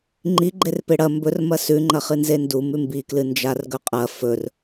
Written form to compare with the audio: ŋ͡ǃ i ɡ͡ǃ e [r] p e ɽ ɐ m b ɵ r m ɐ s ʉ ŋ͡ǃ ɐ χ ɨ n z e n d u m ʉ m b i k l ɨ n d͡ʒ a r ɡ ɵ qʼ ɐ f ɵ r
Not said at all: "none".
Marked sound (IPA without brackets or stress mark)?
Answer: r